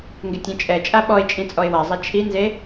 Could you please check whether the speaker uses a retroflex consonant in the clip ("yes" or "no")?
no